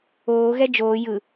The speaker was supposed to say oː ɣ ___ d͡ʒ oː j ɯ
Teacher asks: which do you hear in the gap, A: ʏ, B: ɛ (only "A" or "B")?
B